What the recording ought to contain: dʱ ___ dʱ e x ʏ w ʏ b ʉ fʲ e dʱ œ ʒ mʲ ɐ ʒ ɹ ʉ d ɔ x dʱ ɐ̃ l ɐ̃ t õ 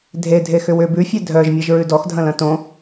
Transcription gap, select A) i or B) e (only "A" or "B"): B